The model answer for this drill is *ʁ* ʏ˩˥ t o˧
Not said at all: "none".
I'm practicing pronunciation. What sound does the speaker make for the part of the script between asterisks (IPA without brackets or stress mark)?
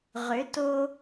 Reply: ʁ